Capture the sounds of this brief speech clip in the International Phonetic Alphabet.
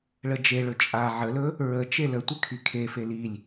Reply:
ɭ ə d͡ʒ e ɭ ɵ t͡ʃʼ a ʕ ə l ɵ | ɹ ə t͡ʃ e l ə tʷ ə kʰ i kʰ e f e l i lʲ

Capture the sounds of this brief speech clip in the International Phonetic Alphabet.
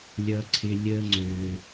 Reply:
lʲ ʌ˦ ǀʰ ɪ˦ lʲ ə˦ ŋ͡ǀ ø˧

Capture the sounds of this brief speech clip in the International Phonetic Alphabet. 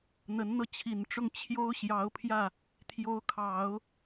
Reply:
n̪ ə˧˥ n n̪ ɤ˥˩ t͡ɕʰ i˨˩ n ʈ͡ʂ ʊ˥˩ ŋ t͡ɕʰ j o˥ ʊ̯ ɕ j ɑ˧˥ ʊ̯ pʰ j ä˥˩ | t̪ʰ j o˧˥ ʊ̯ kʰ ɑ˨˩˦ ʊ̯

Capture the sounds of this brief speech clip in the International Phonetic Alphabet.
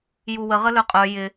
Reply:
j u w ə ʁ ə l œ qʼ œ j ɪ

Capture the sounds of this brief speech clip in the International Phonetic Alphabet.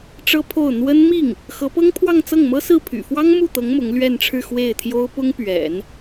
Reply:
ʈ͡ʂ ɤ˥ pʰ o˥˩ ʊ̯ n̪ w ə˥ n m i˥˩ ŋ | x ɤ˧˥ p ɤ˥ ŋ pʰ w ɑ˥˧ ŋ t͡s ɤ˥˩ ŋ m ɤ˥ s ɹ̩˥˩ pʰ y̰˨˩ f w ɑ˥ ŋ m u˥˩ t̪ ɤ˧˥ ŋ m ʊ˧˥ ŋ l ɥ ɛ˥˧ n ʈ͡ʂʰ ɻ̩˥˧ x w e˥˩ ɪ̯ t̪ʰ j o˥ ʊ̯ p ʊ˥ ŋ p ɥ ɛ̰˨˩˦ n

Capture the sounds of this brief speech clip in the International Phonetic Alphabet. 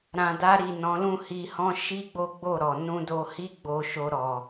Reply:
ɾ ã˨ d a˧ ɾ i˨ n ɔ̃˨˦ l ũ˦˨ h i˧ h ɔ̃˦ ʃ i˦ ɡ͡b o˦ ɡ͡b o˦˨ ɾ ɔ˨ n ũ˧ d o˧ h i˦ ɡ͡b o˦ ʃ o˦ ɾ ɔ˧

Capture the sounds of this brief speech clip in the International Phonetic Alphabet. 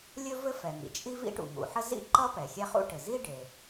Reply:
lʲ ɵ˥ v ɘ˥ f ɛ˩ ŋ ḭ˩ t͡ʃʼ i˥ v ḭ˥ ʈ ṵ˩ ŋ ṵ˩ ħ ə˥ z ḭ˥ ǃ ʌ˥ p ɛ˩ xʲ ɛ˥ χ ṵ˥ ʈ ɘ˩ z i˥ ɖ e˩

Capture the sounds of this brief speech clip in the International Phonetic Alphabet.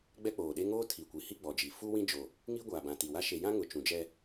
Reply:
ɡ͡b ɛ˦ k͡p oː˨ ɗ e˦ ŋ oː˦ tʰ i˨ kʷ i˨ h i˦ ɡ͡b ɔ˨ d͡ʒ i˨ f u˦ w ĩ˦ d͡ʒ o˨ | ŋ i˦ ɡʷ aː˨ b ã˨ t i˨ w a˦ ʃ e˨ j ã˦ ŋ ʊ˨ t͡ʃ ũ˨ d͡ʒ ɛ˦

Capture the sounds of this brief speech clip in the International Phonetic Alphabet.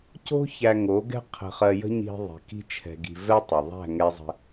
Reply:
c o̤˦ ç æ˧ ŋ o˨˦ ɡ ɛ̤˦ qʰ ə̤˧ χ ɜ˧ j ə̤˦ ɲ i̤˧ ðˤ i̤˨ k i̤˦ t͡ʃʰ ɛ̤˧ ɡ i̤˧ v ɛ˦ tˤ ɛ˨ ðˤ æ̤˦˨ ŋ ɛ˧ zˤ ə̤˧

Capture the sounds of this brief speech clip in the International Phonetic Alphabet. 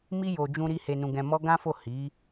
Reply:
m i˦ j o˧ d͡ʒ ũ˧ ɾ i˧ h e˧ n ũ˧ ɡ ɛ̃˧ m ɔ˦ ɡ ã˦ f o˦˨ h i˨˦

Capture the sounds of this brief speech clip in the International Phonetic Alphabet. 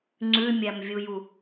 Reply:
ŋ͡ǀ ʉ mʲ æ m vʲ u j u

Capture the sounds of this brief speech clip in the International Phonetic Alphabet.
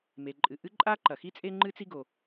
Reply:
m e˩ ǃʼ ɨ˩ ʔ ɨ˥ ǃʼ a˥ ǃ ɐ˩ x i˥ t͡sʼ e˥ ŋ͡ǃ ɨ˥ t͡s i˥ ɡ o˩

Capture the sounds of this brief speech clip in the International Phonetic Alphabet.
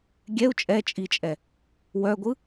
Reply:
ɡʲ ɛ u̯ t͡ʃʼ ɛ t͡ʃʼ i t͡ʃʼ ɛ | w œ ɡʷ ɯ

